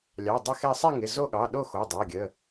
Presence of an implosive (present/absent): present